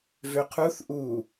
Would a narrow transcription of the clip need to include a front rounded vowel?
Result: yes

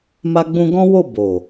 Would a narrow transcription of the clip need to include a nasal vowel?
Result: yes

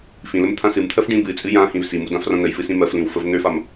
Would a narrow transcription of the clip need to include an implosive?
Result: no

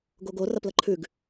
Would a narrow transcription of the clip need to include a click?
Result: yes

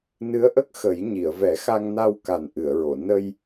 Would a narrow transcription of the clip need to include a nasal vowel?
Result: no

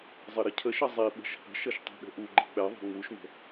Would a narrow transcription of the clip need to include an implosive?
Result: yes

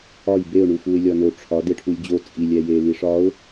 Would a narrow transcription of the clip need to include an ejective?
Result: yes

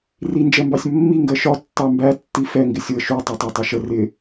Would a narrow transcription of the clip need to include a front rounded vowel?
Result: no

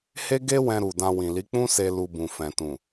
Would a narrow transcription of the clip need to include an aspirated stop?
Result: no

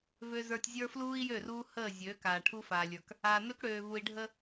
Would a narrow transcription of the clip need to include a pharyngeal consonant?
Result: no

